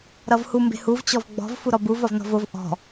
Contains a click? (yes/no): no